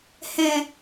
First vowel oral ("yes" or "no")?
no